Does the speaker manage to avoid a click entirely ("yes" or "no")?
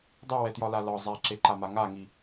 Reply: no